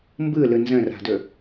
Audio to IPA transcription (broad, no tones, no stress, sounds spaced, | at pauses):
m b ɯ l ɯ n z ə̃ r a̤ d ɵ